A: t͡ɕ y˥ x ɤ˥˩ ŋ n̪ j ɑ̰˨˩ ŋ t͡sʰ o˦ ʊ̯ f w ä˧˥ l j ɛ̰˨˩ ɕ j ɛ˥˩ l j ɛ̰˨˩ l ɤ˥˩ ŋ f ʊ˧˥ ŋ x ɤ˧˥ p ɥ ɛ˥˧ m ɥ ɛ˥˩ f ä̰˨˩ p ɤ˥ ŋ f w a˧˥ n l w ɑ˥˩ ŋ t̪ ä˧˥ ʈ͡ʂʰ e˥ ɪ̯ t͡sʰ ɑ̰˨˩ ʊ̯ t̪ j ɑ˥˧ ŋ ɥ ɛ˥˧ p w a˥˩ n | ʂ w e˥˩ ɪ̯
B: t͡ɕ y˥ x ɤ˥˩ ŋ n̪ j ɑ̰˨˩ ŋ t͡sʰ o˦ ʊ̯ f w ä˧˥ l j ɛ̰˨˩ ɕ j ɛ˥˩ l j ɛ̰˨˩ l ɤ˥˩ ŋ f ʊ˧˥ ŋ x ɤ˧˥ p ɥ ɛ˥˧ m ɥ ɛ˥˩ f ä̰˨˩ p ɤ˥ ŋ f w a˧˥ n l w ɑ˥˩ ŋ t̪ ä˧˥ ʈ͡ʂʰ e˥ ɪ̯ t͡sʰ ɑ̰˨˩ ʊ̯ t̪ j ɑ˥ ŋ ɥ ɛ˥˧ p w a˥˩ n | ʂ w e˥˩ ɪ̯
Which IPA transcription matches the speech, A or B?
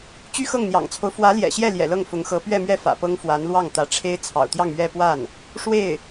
A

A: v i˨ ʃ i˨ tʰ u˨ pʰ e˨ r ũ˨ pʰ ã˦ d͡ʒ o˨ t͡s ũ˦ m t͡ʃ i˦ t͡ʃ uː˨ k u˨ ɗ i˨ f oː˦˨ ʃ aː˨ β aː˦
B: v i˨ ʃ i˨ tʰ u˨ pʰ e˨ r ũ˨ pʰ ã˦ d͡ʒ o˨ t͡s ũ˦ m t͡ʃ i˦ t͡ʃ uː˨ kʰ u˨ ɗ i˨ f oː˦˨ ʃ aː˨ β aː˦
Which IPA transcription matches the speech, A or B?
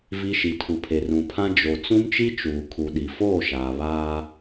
B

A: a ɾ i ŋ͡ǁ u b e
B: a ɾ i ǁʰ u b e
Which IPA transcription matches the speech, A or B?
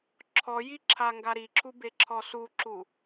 B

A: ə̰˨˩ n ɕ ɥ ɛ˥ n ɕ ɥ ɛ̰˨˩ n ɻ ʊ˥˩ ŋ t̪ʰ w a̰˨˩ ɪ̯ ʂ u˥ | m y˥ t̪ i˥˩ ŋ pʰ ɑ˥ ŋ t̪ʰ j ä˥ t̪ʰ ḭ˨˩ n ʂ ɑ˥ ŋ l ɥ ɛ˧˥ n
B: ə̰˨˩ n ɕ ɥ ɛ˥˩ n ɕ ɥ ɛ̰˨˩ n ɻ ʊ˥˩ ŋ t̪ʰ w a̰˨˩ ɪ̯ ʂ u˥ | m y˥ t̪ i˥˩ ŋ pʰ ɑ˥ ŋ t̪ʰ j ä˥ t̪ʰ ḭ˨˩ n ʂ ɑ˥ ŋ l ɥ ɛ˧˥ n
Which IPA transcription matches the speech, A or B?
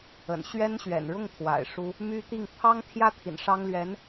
A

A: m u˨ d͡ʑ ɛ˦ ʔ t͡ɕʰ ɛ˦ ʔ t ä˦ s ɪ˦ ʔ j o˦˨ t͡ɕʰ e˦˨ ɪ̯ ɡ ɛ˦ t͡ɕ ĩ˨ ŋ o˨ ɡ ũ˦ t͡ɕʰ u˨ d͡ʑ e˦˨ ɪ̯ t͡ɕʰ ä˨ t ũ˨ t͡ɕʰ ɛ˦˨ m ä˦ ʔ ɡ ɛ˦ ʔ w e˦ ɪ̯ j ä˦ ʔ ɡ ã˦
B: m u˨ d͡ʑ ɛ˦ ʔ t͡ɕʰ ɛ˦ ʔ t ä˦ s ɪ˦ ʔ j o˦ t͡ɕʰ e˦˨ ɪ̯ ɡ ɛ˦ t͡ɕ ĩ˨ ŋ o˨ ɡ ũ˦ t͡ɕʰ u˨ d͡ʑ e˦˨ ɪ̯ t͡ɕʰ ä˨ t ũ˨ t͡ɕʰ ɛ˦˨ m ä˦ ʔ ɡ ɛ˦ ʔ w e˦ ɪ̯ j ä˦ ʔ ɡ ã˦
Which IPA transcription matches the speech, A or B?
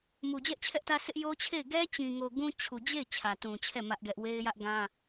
B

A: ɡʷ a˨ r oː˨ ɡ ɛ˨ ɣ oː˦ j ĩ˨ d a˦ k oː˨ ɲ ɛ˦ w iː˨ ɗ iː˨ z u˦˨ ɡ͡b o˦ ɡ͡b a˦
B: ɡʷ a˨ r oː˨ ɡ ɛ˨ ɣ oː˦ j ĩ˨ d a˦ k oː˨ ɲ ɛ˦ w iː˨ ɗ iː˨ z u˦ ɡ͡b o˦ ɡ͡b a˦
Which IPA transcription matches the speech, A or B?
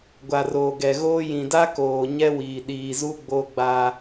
B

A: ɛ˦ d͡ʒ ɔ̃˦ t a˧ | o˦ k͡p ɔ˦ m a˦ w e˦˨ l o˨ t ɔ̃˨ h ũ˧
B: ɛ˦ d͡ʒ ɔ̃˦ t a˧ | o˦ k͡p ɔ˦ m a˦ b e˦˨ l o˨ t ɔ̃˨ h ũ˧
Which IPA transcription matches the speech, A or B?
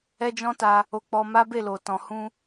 B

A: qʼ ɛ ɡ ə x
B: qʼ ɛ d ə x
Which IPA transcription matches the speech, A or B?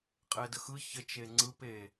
B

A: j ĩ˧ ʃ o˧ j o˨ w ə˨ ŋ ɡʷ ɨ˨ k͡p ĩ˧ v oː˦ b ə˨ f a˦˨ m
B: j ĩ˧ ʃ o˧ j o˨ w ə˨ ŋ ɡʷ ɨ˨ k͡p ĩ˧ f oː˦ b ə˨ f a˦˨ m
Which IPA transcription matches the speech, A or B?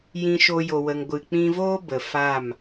A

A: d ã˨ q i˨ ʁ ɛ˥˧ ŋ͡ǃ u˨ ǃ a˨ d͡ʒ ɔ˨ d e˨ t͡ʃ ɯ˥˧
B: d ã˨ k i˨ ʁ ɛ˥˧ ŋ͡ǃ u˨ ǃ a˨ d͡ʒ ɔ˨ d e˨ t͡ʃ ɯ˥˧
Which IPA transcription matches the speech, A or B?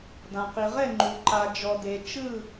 A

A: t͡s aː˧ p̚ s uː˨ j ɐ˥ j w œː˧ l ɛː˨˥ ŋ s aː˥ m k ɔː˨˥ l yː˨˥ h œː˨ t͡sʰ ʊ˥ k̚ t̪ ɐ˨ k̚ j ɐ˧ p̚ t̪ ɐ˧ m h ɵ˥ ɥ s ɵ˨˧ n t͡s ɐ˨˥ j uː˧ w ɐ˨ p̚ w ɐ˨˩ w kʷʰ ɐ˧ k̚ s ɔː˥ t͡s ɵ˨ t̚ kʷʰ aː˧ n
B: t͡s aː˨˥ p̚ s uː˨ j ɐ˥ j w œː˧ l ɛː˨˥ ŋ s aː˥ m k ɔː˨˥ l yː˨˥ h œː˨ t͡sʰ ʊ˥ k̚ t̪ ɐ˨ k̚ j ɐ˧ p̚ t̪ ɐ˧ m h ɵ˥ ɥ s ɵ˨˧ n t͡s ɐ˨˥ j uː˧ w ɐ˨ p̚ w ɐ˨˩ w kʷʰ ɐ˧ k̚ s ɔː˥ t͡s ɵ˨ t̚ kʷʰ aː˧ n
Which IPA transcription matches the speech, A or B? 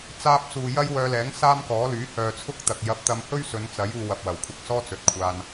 A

